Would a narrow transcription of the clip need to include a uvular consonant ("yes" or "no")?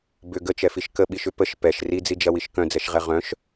yes